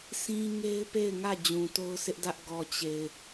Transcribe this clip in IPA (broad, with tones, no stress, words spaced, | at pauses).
sĩ˦ŋe˦ɪ̯pe˦˨ɪ̯ŋä˦˨ d͡ʑũ˨to˦ʊ̯sɪ˦ʔdä˦ʔ ɡɔ˨ t͡ɕe˨ɪ̯